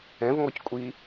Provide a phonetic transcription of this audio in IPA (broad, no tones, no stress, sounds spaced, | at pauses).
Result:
ɛ̃ v ŋ ɔ c kʷʼ iː